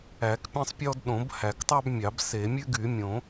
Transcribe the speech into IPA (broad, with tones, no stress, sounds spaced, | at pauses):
æ˨˩˦ k pʲ ɛ̃˦ sˤ pʲ ɔ˦ d ɗ õ˨˩˦ b h æ˨˩˦ k tˤ ɑ˦ b mʲ ɑ˨˩˦ b s e˨˩˦ mʲ ʉ˦ ɡ y˨˩˦ mʲ õ˨˩˦